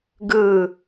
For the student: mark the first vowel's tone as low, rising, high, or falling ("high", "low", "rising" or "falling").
falling